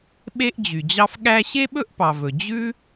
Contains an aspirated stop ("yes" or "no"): no